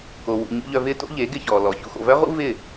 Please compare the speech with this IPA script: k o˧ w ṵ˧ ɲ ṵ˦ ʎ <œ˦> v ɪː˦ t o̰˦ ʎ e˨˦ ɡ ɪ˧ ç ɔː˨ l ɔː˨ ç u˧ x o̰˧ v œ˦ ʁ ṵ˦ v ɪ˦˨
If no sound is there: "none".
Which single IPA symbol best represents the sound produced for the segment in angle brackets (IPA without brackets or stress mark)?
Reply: œ˧